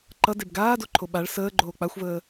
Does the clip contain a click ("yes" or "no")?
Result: yes